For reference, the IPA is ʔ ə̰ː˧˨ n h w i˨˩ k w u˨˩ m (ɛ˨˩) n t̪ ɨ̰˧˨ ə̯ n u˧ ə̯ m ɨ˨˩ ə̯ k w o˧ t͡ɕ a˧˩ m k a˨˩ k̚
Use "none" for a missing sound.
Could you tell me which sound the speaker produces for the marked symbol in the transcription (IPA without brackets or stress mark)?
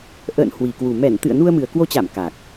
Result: ɛ˧˩